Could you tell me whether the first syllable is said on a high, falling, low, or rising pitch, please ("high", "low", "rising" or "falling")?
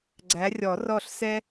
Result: rising